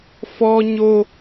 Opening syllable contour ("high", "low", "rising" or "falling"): high